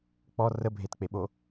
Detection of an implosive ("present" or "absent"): present